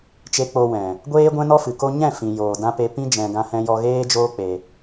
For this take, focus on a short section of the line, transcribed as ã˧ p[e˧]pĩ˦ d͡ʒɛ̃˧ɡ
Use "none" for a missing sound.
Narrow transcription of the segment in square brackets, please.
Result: e˧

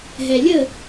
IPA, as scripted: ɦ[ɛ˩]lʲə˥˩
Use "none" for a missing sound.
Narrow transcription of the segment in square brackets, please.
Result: ɛ˩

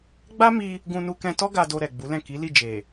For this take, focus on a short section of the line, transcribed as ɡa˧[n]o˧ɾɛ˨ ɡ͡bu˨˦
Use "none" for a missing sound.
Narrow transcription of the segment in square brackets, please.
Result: d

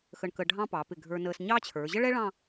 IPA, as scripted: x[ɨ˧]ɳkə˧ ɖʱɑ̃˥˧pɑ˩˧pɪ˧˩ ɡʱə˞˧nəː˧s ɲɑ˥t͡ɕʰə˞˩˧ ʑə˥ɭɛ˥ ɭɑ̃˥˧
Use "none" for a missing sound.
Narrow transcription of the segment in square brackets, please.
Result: ə˧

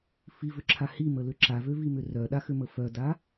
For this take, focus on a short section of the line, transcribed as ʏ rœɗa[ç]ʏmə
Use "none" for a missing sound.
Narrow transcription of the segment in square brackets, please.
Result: x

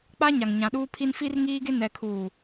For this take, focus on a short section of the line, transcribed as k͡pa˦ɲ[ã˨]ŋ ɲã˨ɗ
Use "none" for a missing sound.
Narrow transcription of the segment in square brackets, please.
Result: a˨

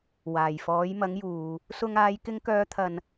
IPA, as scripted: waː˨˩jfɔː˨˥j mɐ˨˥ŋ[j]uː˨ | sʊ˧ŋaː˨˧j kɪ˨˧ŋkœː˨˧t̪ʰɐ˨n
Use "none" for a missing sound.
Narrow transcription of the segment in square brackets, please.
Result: j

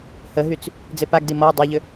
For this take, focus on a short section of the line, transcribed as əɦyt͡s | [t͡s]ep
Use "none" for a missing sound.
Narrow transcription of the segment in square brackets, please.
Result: d͡z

